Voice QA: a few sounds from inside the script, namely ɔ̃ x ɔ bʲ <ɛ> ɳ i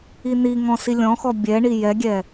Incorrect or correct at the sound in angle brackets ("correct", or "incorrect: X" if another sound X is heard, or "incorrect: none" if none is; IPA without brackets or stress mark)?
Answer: correct